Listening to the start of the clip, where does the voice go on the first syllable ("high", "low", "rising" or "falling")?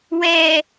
low